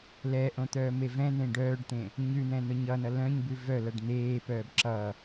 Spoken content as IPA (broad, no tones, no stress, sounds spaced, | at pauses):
l ɛ ʔ õ t̪ œː m e v ɛ̃ n̪ ẽ ɖ œː ɖ t̪ ẽ | ɲ ʉ n̪ ɛ̃ n ʊ ɲ ʌ n ʌ l œ̃ ɲ b ʉ v œ l ʌ ɖ n̪ eː p œː b ǁ ʌ